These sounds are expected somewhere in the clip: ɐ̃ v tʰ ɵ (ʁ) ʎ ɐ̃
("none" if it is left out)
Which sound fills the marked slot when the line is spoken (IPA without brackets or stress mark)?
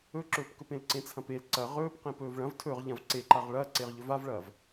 ʁ